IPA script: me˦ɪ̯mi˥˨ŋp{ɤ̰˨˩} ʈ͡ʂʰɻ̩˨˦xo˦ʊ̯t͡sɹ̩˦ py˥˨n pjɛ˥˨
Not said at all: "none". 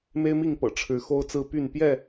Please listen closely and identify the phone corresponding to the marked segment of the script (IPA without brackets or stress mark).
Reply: ɤ̰˨˩